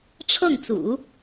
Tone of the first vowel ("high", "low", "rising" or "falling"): falling